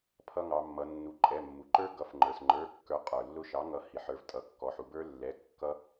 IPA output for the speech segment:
pʰ ʌ˧ ŋ ɑ˩˧ mː ʌ˩˧ nː u˩˥ ǃʼ ɛ˩˧˩ mː u˩ ǃ ə˞˦˥ ɡ ʌ˩˥ f ŋ͡ǃ ə˞˩ s ŋ͡ǃ ə˞˩˧˩ kː ə˞˩˥ qʼ ə˞˩ lː ʊ˧ ʃ ɑ˩˥ ŋ ʌ˩˥ h i˩ ħ ə˞˩˥ v tʼ ʌ˩˧ kː ɔ˩˧˩ ħ u˩˧ b ə˞˦˥ lː ɛ˩˧˩ kː ʌ˦˥

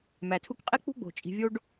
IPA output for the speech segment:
m æ˩ tʰ u˦ k qʼ e˥ k͡p ṳ˥ ɡ͡b o̤˩ t͡ʃʼ i̤˨ vʲ o˦ ɖ

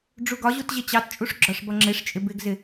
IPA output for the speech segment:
ɖ͡ʐ u ɡ ɒ ʑ u t ʑ ɪ t͡ɕ ɑ t t͡ʃʼ u ʂ ɡ͡ǁ ɒ ʂ b ʌ ŋ͡ǁ ɪ ʂ t͡ʃʼ ɪ b ɪ ɡ z ɪ

